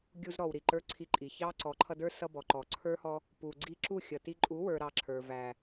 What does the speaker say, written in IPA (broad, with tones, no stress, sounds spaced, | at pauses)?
ɡʲ u˧ z ɾ ɔ˨ w ɾ i˨ ǃ ə˞˦ ǀʰ i˧ ǃʼ i˨ ç ɑ˦ ǀ ɔ˨˦ ǃʰ ʌ˧ d ə˞˦ s ʌ˧ b ɔ˨ ǃ ɔ˨ ǀʰ ə˞˦ h ɔ˧ | p u˨ ɡ͡ǀ i˧ ǁ u˦˨ xʲ ʌ˨ t i˧ ǃʼ u˨˦ w ə˞˨ ɾ ɑ˧ ǁʰ ə˞˨ v æ˨